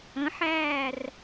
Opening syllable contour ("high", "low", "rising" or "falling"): rising